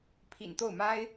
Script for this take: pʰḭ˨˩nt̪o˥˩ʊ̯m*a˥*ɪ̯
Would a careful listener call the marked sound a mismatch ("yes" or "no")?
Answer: no